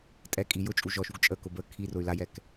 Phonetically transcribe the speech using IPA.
tʼ ɛ kʼ i j ʊ t͡ʃʼ u ʒ ɔ ʃ u ɡ t͡ʃʼ ə k ʊ b ə kʰ i r ʊ y̯ l a j ɛ k

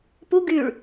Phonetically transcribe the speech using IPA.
p u ɡ y ɭ

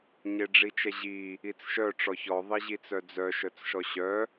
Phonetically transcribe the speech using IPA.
ɲ e ɖ͡ʐ i t͡ʃ ɛ ʑ i | i t͡s ʃ œ ʈ͡ʂ ɔ ç ɔ ðˤ i ʑ i t͡s œ d͡z œ ʃ œ t͡s ʃ ɔ ɕ œ

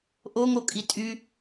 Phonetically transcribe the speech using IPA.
ʔ o ŋ o kʼ i tʼ y

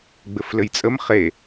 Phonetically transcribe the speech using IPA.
ɡ͡b ɘ f l ɘ j t͡sʼ ə m χ e

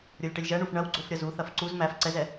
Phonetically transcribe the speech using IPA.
ɾʲ o lʲ ʈ ɐ lʲ ʒ ɐ ɳ u f ɳ ɐ w ɡ͡ǀ o f ɾʲ ɐ z u θ ɐ f ǀ u z m æ f ǀ ɛ z ɛ

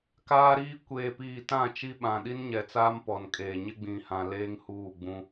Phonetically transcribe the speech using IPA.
k aː˦ ɾ iː˦ kʷ eː˨ p iː˨ t ã˦˨ t͡ʃ i˦ ɓ ã˨ ɗ i˦ n ɲ ɛ˨ t͡s aː˦ m p ɔ˨ n kʼ eː˨ ɲ ɪ˦ ɡ͡b ĩ˨ h ã˨ l eː˦ ŋ h uː˦˨ ɡ͡b ũ˦

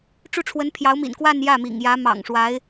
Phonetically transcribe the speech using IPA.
ʈ͡ʂ u˥˩ ʈ͡ʂʰ w ə˧˥ n pʰ j ɑ˧˥ ʊ̯ m ḭ˨˩ n k w a˥˧ n j ä˥˩ m ḭ˨˩ ŋ j ä˧˥ m ɑ̰˨˩ ŋ ʂ w a˧˥ ɪ̯

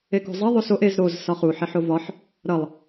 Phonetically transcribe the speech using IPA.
e k o̤ zˤ ʌ ðˤ o s o ʔ e z ɾ o z s ɒ χ u ħ e ħ o v ɒ ħ | ɾ ʌ lˠ

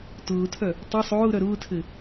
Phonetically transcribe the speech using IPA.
t ʊː tʰ œ | tˤ ɘ sˤ ʊː ɾ œ ɾ ʊː tʰ ɘ

